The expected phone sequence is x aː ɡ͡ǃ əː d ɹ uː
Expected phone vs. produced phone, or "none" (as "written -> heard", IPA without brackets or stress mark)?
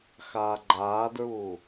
əː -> aː